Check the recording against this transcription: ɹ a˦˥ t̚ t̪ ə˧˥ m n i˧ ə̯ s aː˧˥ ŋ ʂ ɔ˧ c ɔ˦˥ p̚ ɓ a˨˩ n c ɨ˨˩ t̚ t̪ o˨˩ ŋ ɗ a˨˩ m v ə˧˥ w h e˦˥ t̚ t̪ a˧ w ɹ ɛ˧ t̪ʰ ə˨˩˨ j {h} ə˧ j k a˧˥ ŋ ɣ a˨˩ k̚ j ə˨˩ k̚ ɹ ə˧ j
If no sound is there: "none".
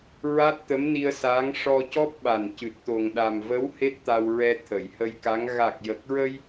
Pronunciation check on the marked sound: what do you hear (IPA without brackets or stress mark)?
h